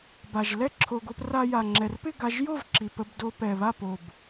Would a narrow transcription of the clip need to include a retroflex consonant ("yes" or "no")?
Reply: no